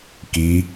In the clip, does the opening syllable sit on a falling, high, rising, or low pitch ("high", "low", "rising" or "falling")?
rising